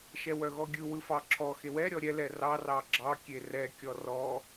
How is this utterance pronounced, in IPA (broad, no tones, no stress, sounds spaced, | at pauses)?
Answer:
ʃ ɛ w œ ɣ ɔ ɡʲ ɯ w ɯ f ɑ ǁʰ ɔ x e w ɛ ɾʲ ɔ ɾʲ ɛ l ɛ r ɑ r ɑ ɡ͡ǁ ɑ kʲ e r ɛ kʲ ɔ r ɔ